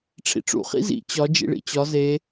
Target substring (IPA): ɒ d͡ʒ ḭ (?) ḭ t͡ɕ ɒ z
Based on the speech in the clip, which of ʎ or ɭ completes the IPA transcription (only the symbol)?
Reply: ɭ